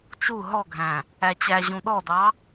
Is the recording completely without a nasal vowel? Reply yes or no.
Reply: no